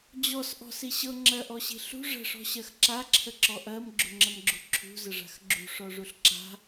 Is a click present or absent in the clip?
present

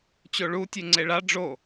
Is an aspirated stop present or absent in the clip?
absent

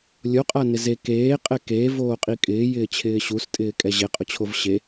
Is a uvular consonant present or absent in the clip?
present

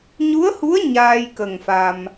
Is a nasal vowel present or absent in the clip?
absent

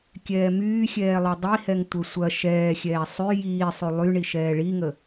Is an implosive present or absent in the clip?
absent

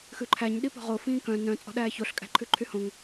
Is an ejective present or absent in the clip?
present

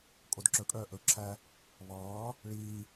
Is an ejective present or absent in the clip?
present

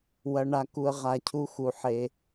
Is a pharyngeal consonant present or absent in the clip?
present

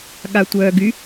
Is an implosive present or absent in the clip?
present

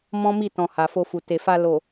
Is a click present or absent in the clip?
absent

